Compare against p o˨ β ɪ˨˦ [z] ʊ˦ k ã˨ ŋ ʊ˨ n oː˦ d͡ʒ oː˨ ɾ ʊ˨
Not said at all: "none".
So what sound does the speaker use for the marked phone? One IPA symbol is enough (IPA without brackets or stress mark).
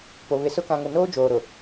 s